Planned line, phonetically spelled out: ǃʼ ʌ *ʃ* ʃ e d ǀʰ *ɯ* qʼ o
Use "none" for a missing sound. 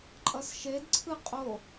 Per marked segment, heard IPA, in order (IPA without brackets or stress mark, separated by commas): s, ɯ